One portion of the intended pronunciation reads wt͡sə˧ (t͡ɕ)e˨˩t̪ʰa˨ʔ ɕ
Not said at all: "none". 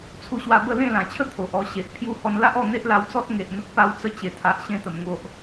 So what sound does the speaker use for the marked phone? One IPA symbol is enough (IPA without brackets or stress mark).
t͡ɕ